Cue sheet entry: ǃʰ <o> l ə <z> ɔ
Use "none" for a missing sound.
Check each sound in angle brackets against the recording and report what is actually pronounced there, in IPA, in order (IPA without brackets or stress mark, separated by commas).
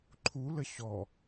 u, ɕ